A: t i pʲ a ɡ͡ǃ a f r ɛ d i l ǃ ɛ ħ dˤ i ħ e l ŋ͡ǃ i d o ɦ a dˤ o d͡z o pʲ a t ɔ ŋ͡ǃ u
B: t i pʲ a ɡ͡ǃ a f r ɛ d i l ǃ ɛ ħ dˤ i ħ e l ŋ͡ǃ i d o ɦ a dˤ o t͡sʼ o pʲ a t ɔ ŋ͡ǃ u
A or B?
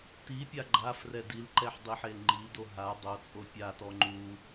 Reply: B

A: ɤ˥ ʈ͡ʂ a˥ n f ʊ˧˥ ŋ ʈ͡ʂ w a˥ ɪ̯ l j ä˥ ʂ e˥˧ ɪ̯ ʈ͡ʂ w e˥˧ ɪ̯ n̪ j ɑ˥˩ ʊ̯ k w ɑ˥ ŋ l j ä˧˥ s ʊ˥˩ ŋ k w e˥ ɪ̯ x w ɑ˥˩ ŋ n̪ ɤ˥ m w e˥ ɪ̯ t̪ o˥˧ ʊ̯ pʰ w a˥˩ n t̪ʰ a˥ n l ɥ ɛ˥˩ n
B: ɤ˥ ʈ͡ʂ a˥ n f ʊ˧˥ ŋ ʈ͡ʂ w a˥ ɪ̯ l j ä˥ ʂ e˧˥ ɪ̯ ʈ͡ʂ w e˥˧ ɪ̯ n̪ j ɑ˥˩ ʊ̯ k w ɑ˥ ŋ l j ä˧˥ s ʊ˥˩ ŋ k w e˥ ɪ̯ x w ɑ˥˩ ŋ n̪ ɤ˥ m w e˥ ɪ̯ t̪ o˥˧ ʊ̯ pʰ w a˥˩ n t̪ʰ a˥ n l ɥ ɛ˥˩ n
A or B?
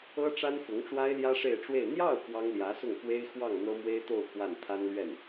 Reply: A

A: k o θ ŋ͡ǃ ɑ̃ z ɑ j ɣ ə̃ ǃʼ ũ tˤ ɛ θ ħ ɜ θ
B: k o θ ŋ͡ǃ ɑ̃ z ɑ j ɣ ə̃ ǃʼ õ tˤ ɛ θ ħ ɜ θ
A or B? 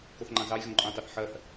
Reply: A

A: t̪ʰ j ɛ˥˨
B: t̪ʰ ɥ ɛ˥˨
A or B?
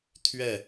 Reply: B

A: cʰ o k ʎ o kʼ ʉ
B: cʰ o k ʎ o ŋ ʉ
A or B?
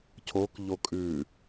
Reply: A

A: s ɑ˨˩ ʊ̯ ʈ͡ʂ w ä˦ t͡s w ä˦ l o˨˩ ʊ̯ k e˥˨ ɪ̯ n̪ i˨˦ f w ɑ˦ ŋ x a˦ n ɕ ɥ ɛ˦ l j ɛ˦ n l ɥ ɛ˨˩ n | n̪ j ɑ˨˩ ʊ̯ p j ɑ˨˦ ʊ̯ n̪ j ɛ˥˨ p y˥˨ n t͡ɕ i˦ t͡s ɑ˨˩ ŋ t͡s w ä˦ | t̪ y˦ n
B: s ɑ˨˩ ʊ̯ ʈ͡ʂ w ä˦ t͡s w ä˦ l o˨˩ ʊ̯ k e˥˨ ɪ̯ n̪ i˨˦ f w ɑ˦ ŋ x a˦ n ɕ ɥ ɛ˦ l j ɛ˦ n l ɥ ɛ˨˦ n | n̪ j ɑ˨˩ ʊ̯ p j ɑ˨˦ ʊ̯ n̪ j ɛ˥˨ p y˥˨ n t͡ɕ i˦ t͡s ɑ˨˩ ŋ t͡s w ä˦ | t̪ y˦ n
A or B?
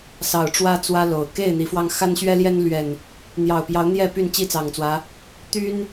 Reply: A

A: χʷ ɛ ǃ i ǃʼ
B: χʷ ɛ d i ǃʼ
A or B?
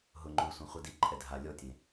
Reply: B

